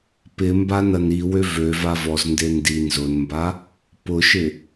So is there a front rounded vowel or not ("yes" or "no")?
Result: yes